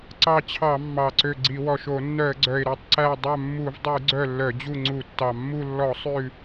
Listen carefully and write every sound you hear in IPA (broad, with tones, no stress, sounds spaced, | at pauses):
ǀ ɑ˦˨ t͡ɕʰ ɑ˧˩˧ mː ɑ˨˩ ǀ ø˦˨ ɡ͡ǀ i˧˩˧ w ɔ˨˩ ʃ o˧˩˧ nː œ˧˩˧ ə̯ ɡ͡ǀ œ˨˩ ɪ̯ ɾ œ˦˨ tˤ ǀ æ˦˨ dˤ œ˦˨ mː u˧˩˧ v dˤ ʉ˧˩˧ ɡ͡ǀ œ˦˨ lː œ˧˩˧ d͡ʑ u˦˨ ŋ͡ǀ u˧˩˧ tː ɑ˨˩ mː u˦˨ lː ɔ˧˩˧ sˤ ʉ˦˨